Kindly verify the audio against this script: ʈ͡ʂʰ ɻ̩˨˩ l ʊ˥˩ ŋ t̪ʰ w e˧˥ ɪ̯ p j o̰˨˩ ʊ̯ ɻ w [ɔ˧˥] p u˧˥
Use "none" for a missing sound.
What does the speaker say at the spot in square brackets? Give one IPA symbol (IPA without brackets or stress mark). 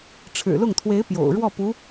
ɔ˥˩